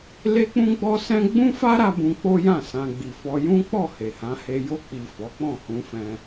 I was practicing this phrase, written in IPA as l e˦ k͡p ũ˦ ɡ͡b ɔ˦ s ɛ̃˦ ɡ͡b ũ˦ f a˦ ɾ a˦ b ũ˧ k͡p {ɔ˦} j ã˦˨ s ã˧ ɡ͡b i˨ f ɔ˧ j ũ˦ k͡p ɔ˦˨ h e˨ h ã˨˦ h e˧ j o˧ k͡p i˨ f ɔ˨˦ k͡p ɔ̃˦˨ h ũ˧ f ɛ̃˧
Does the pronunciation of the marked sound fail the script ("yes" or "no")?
yes